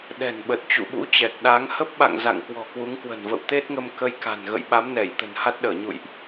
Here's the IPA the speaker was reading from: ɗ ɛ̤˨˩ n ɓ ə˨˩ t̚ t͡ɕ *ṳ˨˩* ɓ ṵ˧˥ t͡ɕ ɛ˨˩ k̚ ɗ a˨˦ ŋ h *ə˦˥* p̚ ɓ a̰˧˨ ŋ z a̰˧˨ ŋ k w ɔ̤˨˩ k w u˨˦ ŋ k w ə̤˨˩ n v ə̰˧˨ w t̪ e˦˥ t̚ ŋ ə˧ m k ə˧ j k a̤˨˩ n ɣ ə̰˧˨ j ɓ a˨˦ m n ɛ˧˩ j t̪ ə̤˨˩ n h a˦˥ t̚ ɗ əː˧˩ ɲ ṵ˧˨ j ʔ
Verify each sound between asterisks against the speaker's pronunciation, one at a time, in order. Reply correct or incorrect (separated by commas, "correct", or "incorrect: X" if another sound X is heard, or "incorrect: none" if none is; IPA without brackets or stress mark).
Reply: incorrect: ṵ˧˨, correct